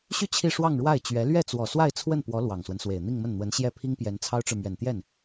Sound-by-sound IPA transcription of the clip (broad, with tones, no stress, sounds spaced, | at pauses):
ɕ y˥˧ t͡ɕʰ i˥˧ ʂ w ɑ˥˧ ŋ ɻ w a˥˩ ɪ̯ t͡ɕ ɥ ɛ˧˥ l ɥ ɛ˥˩ t͡s w ɔ˨˩ s w a˥˧ ɪ̯ t͡sʰ w ə˥˩ n p w ɔ˧˥ l w ɑ˨˩ ŋ s w ə˦ n s w e˨˩ ɪ̯ n̪ i˥˧ ŋ m ə˥˩ n n̪ w ə˧˥ n ɕ j ɛ˥˩ pʰ i˥ ŋ p j ɛ˧˥ n t͡sʰ ɑ˥ ʊ̯ ʈ͡ʂ ɻ̩˨ m ɥ ɛ˨˩ n t̪ j ɛ˥˩ n